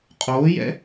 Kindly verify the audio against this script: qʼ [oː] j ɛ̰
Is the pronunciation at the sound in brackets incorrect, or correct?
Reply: correct